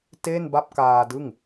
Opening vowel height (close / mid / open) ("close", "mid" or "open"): mid